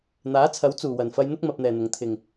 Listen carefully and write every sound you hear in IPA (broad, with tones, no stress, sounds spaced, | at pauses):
n̪ aː˨˥ t͡sʰ ɐ˨˥ w t͡s uː˨˩ w ɐ˨˩ n f ɐ˧ j n̪ ʊ˥ k̚ m ɐ˨ p̚ n̪ ɛː˨˩ n̪ ʊ˨˩ ŋ t̪ʰ ɪ˨˩ ŋ